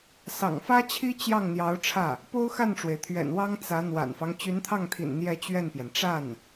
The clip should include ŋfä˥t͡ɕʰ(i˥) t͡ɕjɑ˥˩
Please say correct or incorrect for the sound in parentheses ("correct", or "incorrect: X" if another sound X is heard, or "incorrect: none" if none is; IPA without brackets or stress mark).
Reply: correct